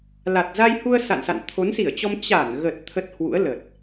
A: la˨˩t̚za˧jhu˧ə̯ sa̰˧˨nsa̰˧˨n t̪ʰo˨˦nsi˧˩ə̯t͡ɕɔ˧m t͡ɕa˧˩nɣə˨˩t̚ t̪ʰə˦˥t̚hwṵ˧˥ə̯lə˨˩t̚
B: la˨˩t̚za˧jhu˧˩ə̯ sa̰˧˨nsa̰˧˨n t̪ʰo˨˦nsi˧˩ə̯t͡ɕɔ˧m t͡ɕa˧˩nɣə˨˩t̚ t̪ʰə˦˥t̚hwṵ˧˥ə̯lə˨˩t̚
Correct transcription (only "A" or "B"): A